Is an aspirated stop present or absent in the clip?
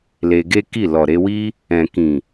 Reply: absent